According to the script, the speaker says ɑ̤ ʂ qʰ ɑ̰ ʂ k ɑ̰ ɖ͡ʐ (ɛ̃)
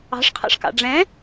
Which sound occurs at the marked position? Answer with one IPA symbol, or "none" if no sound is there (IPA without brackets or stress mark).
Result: ɛ̃